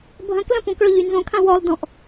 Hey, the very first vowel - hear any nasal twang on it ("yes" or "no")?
yes